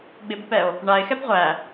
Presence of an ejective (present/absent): absent